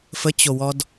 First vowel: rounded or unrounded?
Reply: unrounded